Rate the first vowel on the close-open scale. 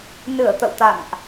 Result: close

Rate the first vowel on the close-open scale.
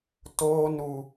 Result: mid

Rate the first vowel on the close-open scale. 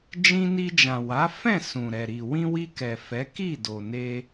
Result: close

